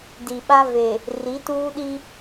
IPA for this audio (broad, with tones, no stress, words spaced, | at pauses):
di˨ɓa˦ve˨ | ri˨˦tuː˦ɗi˦